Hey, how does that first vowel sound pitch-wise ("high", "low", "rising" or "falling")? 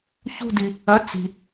falling